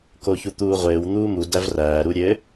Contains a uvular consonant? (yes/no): yes